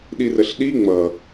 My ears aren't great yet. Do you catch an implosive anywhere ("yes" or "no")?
yes